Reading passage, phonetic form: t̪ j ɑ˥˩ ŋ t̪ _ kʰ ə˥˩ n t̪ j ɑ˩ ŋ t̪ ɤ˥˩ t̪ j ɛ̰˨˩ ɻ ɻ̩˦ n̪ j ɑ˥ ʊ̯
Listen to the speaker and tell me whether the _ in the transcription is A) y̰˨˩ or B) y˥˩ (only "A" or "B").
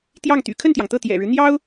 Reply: A